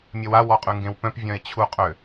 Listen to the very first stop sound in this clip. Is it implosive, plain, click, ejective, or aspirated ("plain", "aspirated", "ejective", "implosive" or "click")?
ejective